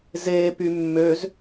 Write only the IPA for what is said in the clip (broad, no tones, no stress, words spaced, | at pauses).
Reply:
ze pymːøz